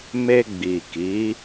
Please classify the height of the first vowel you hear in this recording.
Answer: mid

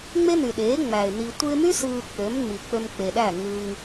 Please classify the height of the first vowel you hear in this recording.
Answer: mid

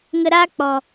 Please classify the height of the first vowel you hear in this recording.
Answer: mid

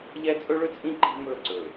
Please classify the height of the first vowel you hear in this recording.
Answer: mid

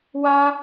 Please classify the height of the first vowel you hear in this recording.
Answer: low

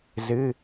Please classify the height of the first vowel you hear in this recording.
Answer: high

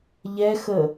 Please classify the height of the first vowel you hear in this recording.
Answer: mid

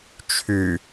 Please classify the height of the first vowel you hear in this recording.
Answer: high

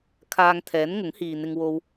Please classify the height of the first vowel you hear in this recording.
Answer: low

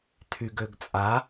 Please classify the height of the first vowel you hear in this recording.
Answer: high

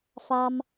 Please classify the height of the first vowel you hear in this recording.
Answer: low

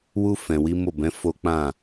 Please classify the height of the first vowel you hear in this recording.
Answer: high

